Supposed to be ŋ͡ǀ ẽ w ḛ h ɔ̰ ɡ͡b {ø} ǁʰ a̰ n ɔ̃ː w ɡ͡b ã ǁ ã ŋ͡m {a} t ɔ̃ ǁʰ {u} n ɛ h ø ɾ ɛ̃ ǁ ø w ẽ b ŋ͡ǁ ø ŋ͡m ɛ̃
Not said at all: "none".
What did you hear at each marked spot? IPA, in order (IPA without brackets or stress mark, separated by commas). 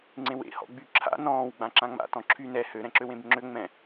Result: y, a̰, y